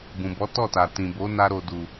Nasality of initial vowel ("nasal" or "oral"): nasal